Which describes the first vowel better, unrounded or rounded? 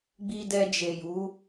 unrounded